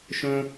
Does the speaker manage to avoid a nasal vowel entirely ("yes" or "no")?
no